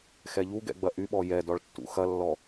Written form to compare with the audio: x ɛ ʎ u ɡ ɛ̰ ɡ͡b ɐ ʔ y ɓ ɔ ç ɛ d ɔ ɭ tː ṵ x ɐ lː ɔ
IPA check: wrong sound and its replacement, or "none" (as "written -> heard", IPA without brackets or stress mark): ç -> j